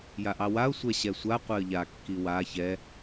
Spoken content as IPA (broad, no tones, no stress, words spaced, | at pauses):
jaʔɑwaʊ̯ sʷɛɕɛsʷa qʷɛə̯ʎa kːiwa çɛ